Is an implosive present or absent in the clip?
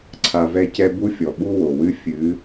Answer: present